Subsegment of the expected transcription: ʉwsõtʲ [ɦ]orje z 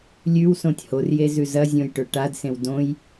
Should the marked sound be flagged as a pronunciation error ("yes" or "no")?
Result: yes